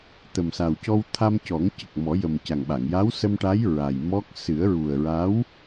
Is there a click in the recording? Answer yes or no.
no